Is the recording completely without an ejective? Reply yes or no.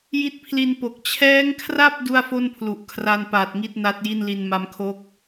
yes